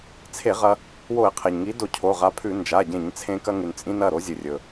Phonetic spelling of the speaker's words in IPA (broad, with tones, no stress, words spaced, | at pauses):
t͡sʰe˧˩˧ ʁɐ˧ | wo˧˩˧ɪ̯qʰe˩ɲŋi˨˥do˧˩˧ cʰo˩˧˩ʁa˨˥pʰʉ˧˩˧ nd͡ʒa˩˧˩ɟẽ˧˩˧ɲt͡sʰẽ˧ kɐ˧ŋʉ˩n t͡sʼĩ˧n ɐ˩˧˩ɾo˨˥ zʲɨ˩rʲɵ˩